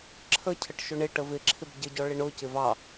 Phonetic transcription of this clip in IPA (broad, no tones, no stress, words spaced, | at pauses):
ǁʰəcʰəʈ ʃʊɳɪ ʈəvɪǁʰɪb ɟɪɟɔ ɭɪɳʊ cɪvɑ